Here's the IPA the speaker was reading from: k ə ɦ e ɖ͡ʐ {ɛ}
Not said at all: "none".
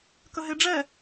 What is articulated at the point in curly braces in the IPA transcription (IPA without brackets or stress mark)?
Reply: ɛ